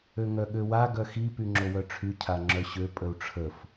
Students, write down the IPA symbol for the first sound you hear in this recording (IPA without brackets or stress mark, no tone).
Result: ø